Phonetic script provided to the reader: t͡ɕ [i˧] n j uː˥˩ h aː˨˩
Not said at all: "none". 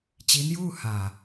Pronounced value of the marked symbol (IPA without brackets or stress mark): i˦˥